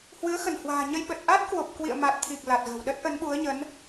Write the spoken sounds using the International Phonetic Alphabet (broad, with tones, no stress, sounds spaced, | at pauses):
h w ɨ˨˦ ə̯ x ə˧˩ n h w a̤ː˨˩ ɲ ə˧ j ɓ ə˨˩ t̚ ʔ a˦˥ t̚ k w o˨˩ p̚ k w ḭ˧˨ ə̯ m a˨˩ t̚ t̪ʰ i˨˩ k̚ l a˨˩ t̚ ɣ ə̤˨˩ w ɗ ə˦˥ t̚ ʔ ə˨˦ n ɓ u˨˦ ə̯ ɲ ə˨˦ n